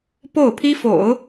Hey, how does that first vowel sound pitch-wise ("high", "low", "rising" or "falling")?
falling